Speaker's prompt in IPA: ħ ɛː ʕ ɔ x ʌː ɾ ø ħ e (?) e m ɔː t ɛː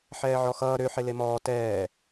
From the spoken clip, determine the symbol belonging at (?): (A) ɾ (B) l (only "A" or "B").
B